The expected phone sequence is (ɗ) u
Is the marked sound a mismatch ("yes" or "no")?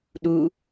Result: no